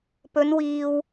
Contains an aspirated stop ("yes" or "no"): no